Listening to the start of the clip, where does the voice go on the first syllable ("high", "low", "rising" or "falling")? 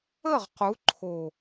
falling